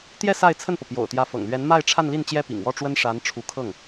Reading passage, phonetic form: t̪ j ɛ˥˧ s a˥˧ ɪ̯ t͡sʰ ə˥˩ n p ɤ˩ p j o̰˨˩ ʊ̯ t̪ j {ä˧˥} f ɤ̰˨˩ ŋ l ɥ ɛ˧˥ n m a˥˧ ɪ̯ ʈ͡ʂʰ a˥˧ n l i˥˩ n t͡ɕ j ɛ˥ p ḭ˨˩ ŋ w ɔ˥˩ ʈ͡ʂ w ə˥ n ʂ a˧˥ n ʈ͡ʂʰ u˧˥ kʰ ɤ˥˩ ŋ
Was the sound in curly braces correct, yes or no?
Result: yes